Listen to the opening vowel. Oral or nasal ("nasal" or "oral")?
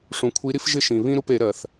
nasal